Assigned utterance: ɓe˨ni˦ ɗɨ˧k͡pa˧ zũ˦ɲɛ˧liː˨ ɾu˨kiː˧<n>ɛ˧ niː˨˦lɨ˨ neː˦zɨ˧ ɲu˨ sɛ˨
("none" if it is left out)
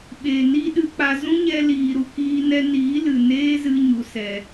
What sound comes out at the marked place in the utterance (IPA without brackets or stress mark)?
n